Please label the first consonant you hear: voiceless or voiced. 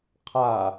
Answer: voiceless